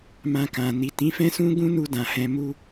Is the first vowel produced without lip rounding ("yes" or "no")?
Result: yes